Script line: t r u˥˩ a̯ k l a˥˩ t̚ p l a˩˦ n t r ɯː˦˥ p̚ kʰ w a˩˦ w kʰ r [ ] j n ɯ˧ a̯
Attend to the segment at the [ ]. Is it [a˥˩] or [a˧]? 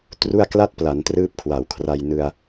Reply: a˧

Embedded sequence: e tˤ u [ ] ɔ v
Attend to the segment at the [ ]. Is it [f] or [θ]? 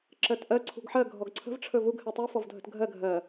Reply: f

